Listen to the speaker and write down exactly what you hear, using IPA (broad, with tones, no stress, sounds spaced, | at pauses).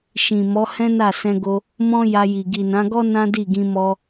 ʃ ĩ˨ m ɔ˨˦ h ɛ̃˦ n a˦˨ s ɛ̃˧ ɡ o˧ | m ɔ̃˦ j a˧ j i˨ ɡ i˨ n ã˨˦ ɡ ɔ˦ n ã˦ d i˦˨ ɡ ĩ˧ m ɔ˧